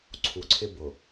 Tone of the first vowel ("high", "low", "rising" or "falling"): low